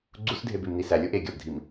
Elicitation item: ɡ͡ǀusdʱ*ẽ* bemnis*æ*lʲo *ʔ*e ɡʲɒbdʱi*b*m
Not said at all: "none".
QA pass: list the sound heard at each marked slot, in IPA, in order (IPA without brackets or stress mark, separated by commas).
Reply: e, æ, ʔ, none